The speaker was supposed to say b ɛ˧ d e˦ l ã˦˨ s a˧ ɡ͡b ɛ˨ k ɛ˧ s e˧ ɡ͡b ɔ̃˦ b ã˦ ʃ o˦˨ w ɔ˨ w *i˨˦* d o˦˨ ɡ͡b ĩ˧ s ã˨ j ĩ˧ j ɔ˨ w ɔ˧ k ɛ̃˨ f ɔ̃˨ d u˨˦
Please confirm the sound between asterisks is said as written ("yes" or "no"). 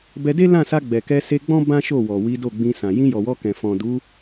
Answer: yes